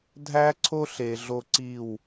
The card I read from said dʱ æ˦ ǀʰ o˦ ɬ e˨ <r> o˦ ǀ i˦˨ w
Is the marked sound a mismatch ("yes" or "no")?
yes